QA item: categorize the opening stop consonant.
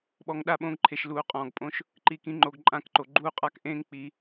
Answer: implosive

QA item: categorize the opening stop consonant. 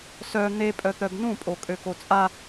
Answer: ejective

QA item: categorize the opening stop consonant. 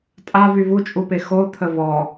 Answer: ejective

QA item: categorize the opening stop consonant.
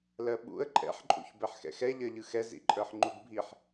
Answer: implosive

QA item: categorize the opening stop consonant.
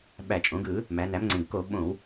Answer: implosive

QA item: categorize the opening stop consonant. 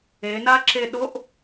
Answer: click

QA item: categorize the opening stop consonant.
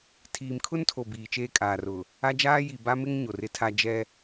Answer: aspirated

